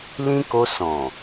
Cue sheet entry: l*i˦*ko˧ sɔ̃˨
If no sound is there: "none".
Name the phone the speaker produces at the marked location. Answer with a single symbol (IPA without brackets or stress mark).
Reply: ĩ˦